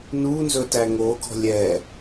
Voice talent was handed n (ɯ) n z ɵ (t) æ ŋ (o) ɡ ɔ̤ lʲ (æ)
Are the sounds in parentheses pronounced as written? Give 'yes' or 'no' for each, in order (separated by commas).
no, yes, yes, no